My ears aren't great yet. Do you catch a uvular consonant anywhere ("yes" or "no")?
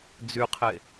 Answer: yes